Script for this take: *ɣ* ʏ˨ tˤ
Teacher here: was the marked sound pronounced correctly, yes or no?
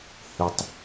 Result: no